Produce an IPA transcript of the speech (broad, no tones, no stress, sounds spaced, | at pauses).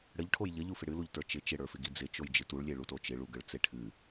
ɽ ə ʎ ʈʰ o j ʎ ə ʎ u f ɪ ɽ ɨ l u ʎ t ə˞ t͡ʃ ɪ t͡ʃ ɪ ɽ ə˞ f ɪ ɡ i d͡z ɪ t͡ʃ o j d͡ʒ ɨ t u ɭ lʲ e ɭ u t o t͡ʃ ɪ ɭ u ɡ ə ɭ t͡s e ʈʰ ɨ